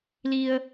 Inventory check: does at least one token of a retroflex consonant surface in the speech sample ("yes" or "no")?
no